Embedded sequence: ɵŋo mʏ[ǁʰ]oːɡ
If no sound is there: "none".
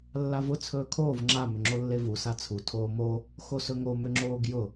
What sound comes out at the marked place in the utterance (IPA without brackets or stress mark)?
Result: ŋ͡ǁ